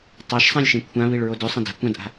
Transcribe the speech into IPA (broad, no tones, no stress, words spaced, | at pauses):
tˤaʃsˤãlʲʃẽ kʷʰãβiɭɹo dʉsˤɐ̃ da̤ kʷãdʔa̤